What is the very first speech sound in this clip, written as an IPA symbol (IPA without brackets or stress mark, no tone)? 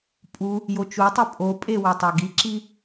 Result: pʼ